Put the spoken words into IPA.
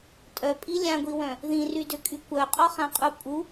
tʼ œ pʼ i lʲ ã ɡʷ i w œ̃ | ð ĩ r y d ø kʼ y kʷ œ qʼ ɔ χ ã qʼ u pʼ u

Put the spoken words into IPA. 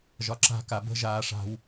ʒ ɒ ǁ a̤ k a b ə̤ ʒ aː ʂ a̤ w

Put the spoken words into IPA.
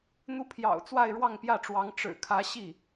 n̪ u˧˥ pʰ j ɑ̰˨˩ ʊ̯ t͡s w a˥˧ ɪ̯ ɻ w ɑ˥˧ ŋ p j ä˥˩ ʈ͡ʂ w ɑ˧˥ ŋ ʈ͡ʂ ɻ̩˨˩ kʰ ä˧˥ ɕ i˥˩

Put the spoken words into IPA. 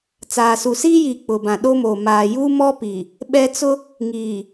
t͡s aː˨ s u˨ s iː˦ j iː˨ k͡p ʊ˨ b ã˨ ɗ o˦ m oː˨ m aː˨ j u˦ m ɔ˦ p i˨ | ɓ ɛ˦ t͡s ʊ˦ | ŋ iː˨

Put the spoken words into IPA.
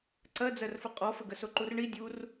ǀ ɜ d͡z ɜ r f ə qʼ ɔ f ə ɡ ə s o ǃ u r ɳ i dʲ u r

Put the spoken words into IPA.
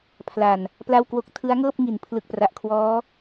pʰ l a˨˩ n | p l a˥˩ w k w o˥˩ k̚ tʰ ɯ˦˥ a̯ ŋ ɤː˥˩ p̚ ŋ i˩˦ n pʰ l ɯ˨˩ k̚ p r a˨˩ ʔ kʰ w ɔː˦˥

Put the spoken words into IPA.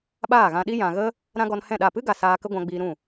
ɓ aː˦˨ ɣ ã˧ ɗ i˦ j ã˨ ɣ ə˦ | ɾ ã˦ ɡ ɔ˧ n h ɛ̃˦˨ ɗ a˦˨ p ɨ˦ ɡ a˨ s aː˧ k ə˦ ɡʷ ã˧ ɡ͡b iː˧ ɾ ũ˦˨

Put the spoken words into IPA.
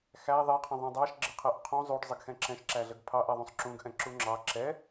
x æ ðˤ ɛ qʰ ə̃ ðˤ ũ dˤ ɑ ʃ ɡ͡ǁ ɪ qʰ ɛ ʔ qʰ ũ zˤ u ɖ zˤ ə ɡ x ɛ̃ ǁ ɛ̃ ʃ ǁ æ ɮ ə ɡ pʰ ɑ ʔ ɛ ðˤ ũ sˤ ǁ ũ ɡ ʔ ɛ̃ ǁ u ŋ͡ǁ ɑ ǁ ɛ

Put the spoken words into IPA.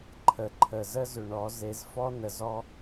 ǃʰ ə˨ ǃʰ ə˨ z ə˦ z ʏ˨ ɳ ɔ˨˦ z e˨˦ z f ɔ˦ n ə˨ z ɔ˦

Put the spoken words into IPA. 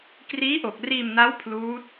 k r iː˦˥ ʔ o˨˩ k̚ r iː˧ m n a˦˥ w pʰ l uː˦˥ t̚

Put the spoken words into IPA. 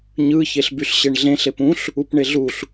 ɲ ɯ ç e ɬ b y ɬ ɕ e ɳ ɮ ẽ ɬ e p ũ ɬ | u p ɳ e ɮ u ɬ

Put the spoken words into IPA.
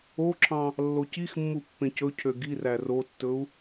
o ǁʰ ɑ̃ | lː o c i x mː u pː ẽ c ɵ cʰ ø ɡ i r æ r o tː ɵ u̯

